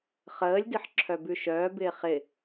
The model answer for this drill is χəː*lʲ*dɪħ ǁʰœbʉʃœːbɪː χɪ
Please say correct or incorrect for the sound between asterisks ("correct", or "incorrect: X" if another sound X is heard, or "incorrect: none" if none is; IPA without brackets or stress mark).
correct